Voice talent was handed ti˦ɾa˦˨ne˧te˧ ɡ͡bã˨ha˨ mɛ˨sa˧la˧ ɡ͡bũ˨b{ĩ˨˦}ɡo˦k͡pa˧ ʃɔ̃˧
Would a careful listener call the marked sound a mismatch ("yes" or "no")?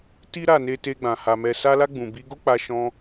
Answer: yes